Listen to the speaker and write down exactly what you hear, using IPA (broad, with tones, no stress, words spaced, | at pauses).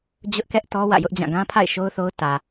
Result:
d͡ʑʊ˦ʔkɛ˦ʔtɔ˦ wä̰˦˨jʊ˦ʔd͡ʑã˦˨ ɡã˦pʰa̰˦˨ɪ̯ ʃo˦ʊ̯θo˦ʊ̯ tä˨